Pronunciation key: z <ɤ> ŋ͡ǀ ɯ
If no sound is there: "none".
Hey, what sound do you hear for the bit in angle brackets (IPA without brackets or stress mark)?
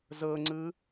ɤ